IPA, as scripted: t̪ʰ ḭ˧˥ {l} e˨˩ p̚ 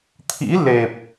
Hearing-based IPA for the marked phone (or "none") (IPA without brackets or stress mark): l